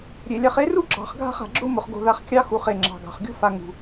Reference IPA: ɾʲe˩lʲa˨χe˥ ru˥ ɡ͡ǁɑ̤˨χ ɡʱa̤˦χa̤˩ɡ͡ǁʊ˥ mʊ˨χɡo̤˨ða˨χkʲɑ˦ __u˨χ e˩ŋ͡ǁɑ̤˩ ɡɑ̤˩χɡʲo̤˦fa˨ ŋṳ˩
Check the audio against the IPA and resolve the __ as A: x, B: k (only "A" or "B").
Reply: A